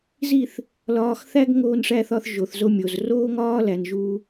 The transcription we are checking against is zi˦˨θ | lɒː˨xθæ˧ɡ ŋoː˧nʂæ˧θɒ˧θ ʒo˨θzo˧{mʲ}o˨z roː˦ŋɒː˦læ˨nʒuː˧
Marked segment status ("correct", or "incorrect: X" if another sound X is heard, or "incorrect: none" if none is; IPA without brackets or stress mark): correct